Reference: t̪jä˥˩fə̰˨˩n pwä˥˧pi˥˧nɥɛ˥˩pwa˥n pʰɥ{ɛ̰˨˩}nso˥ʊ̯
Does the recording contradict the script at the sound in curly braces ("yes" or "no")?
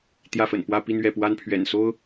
no